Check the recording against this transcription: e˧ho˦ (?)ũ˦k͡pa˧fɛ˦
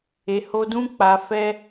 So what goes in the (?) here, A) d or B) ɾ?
A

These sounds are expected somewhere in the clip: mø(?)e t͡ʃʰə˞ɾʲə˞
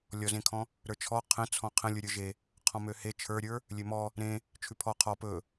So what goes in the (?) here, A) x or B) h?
B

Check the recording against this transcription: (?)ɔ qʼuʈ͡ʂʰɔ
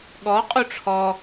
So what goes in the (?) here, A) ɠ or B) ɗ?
A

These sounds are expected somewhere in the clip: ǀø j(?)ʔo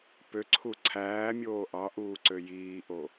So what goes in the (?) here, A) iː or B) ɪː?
A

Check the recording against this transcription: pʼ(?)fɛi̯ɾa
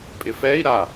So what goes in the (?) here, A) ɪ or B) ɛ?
A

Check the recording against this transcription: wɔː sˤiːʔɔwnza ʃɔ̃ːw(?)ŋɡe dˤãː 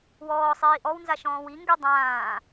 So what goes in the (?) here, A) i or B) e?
A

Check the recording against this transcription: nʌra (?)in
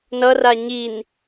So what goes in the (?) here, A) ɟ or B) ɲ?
B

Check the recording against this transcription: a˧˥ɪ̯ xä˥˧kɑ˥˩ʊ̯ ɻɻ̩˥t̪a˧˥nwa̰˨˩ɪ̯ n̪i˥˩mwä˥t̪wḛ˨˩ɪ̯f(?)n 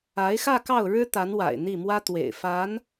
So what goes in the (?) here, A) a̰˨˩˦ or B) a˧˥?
B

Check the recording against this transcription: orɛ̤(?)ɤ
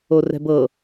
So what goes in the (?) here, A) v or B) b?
B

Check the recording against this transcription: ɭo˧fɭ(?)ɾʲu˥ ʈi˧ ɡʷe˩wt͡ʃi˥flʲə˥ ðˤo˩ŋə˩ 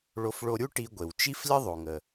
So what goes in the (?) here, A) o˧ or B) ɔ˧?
A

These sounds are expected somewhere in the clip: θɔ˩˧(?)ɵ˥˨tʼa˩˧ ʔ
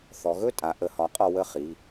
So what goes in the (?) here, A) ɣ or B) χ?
A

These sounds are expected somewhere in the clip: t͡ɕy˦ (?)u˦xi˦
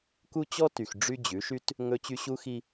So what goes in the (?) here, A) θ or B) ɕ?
B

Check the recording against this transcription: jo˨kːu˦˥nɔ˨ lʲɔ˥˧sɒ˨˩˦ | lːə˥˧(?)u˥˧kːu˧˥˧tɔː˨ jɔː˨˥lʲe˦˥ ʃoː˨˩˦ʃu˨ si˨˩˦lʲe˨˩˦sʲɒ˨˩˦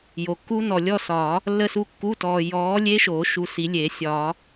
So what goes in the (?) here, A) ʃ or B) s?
B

